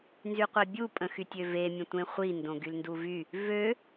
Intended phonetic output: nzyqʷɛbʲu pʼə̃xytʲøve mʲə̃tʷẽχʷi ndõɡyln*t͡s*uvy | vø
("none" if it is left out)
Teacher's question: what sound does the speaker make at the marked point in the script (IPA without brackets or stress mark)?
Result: d